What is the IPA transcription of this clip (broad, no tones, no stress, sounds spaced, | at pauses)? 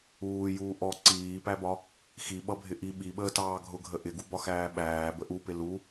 uː j uː ʔ ɔ ǀ iː p æ b ɒ | x i ɓ ʌ bʱ ɪ ʔ i ɓ i ɓ əː t ɑː ɡʱ ʊ ɡʱ ə ʔ ɪ ɡ u b ɒ x æː ɓ æː b ə ʔ u p ɪ l u